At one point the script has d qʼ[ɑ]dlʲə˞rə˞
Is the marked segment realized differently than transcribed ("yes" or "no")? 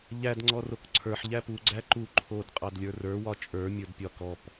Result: no